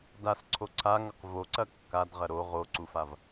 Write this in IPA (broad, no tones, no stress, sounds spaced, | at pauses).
d a s ǀʰ o ǀʰ a ŋ ɐ q v o ǀ ɐ kː a d ʁ ɐ ɾ o ʁ o ǀ u f a v